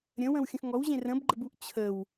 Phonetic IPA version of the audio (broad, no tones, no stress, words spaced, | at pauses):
ɾʲə̃wə̃wxʲə̃x ŋɔwʑẽ rə̃bɡ͡ǃəbuʔ t͡ɕʰəw